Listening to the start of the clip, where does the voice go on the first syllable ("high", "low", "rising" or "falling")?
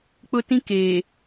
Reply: high